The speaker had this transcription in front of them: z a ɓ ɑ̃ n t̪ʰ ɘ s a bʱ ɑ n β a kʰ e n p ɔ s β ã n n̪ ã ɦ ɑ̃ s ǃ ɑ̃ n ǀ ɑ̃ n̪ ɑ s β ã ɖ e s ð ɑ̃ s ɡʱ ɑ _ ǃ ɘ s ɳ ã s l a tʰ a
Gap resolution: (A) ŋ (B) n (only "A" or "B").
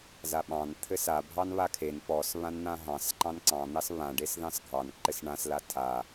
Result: B